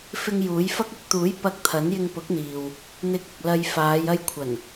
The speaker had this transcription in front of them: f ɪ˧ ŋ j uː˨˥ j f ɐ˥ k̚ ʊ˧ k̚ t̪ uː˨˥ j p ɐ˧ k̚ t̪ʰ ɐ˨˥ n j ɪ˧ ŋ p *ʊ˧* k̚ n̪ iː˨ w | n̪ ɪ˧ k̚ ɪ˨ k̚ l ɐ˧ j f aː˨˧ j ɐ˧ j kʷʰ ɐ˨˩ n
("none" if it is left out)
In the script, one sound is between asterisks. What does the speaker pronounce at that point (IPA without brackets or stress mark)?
ʊ˨˥